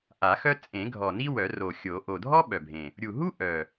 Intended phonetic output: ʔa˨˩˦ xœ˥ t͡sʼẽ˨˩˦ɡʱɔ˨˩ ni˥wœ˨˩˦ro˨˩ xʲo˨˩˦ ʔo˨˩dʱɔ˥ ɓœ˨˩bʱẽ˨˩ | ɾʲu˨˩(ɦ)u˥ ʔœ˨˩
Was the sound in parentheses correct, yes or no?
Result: yes